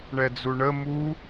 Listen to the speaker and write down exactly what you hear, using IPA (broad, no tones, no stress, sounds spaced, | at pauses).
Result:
ɳ ɛ d͡z u ɳ ə m u